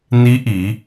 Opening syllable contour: rising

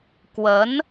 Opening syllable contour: rising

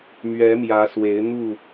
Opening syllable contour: rising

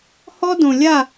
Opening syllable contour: high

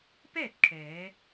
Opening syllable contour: falling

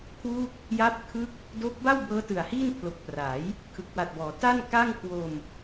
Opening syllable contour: falling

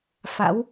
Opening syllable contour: rising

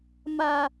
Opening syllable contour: high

